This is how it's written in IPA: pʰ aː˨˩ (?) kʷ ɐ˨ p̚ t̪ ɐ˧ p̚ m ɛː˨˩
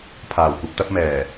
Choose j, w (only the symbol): w